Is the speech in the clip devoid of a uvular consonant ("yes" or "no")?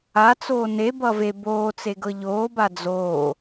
yes